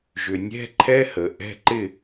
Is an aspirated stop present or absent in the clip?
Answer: present